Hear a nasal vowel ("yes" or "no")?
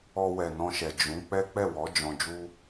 yes